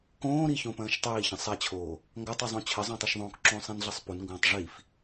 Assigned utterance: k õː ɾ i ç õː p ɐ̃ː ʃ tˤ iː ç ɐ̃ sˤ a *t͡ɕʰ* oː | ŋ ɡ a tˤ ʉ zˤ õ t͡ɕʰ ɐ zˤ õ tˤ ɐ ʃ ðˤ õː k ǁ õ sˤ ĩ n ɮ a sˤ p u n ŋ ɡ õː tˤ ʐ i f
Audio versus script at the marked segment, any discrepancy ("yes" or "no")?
no